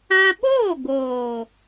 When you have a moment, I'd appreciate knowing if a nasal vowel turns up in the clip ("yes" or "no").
yes